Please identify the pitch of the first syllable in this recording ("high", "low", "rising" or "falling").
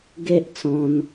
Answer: high